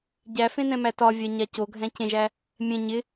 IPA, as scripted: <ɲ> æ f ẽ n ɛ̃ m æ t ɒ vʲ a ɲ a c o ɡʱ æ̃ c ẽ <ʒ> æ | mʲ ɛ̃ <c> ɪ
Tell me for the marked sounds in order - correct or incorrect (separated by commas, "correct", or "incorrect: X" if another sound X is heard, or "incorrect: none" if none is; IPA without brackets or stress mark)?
incorrect: ɟ, correct, incorrect: ɲ